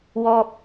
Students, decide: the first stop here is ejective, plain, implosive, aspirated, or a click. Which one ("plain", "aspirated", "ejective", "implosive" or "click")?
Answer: plain